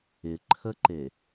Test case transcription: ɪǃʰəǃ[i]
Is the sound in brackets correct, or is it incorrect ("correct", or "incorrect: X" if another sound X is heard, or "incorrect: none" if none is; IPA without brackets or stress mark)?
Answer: incorrect: e